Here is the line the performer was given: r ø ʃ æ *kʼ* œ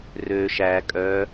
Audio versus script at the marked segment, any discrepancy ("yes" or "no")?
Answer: no